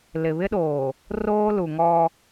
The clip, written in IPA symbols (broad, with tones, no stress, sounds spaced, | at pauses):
l ɪ˨ β ɪ˦ ɗ oː˨ | r oː˦ l u˨ ŋ ɔ˦